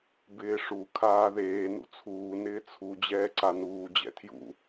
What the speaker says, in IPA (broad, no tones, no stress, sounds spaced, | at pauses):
b ɪː ʂ u kʰ aː ð eː n ṵ t͡sʰ uː n ɪː t͡sʰ u d͡ʑ ɛː ǀ a n uː d͡ʑ ɛ̰ tʰ j ṵ